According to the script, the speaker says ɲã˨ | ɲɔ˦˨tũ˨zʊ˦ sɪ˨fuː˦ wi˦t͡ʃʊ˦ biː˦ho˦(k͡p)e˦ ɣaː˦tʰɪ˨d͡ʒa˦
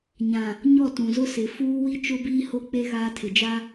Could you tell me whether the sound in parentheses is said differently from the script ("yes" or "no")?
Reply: no